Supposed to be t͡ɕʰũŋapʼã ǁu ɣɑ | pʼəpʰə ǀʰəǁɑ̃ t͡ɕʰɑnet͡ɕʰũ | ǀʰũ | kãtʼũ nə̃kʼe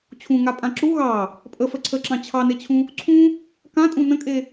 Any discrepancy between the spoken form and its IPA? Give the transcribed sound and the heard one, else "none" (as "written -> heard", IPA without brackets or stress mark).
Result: pʰ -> f